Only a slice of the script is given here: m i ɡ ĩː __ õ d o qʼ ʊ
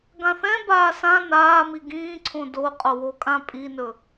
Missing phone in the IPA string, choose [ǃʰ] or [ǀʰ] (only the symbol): ǀʰ